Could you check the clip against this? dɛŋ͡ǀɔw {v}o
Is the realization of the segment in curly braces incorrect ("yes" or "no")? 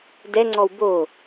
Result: yes